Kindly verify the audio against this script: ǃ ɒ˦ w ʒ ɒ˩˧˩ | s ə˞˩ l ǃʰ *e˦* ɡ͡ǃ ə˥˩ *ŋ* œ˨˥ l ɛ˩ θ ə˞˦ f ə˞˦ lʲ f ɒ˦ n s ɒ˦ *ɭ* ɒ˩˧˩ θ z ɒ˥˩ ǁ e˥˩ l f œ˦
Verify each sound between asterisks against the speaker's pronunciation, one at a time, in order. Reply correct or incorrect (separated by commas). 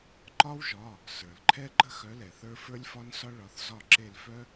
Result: incorrect, incorrect, correct